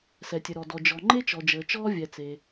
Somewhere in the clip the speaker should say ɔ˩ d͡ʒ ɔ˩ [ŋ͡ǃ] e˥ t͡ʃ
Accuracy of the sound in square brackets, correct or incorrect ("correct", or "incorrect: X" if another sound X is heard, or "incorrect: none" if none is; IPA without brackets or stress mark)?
correct